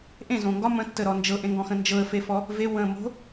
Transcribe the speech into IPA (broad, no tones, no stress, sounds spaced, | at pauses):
ʔ ẽ z õ ŋ ɡ ɒ m ə̃ tː ə ɾ ɔ n d͡ʒ ɤ ʔ ẽ ŋ ɡ ɔ̃ x ə̃ n d͡ʒ ɤ ə̯ f e f ɔ | v e w ə̃ m o̤